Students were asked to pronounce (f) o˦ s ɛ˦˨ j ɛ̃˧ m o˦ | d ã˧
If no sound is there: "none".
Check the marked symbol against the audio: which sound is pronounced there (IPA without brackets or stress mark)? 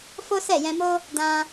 f